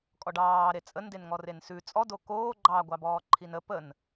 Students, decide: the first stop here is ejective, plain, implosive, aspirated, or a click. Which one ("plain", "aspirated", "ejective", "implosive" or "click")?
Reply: ejective